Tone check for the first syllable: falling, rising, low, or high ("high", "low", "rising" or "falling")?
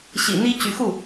low